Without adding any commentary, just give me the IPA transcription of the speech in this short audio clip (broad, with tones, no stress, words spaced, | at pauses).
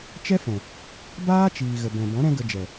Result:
t͡ʃɛ˦fɛ̃˨ | baː˦t͡ʃiː˨ ɣə˨bɛ̃˨bɔ̃˨˦ ɾɛ̃˦ɡə˧d͡ʒɛ˨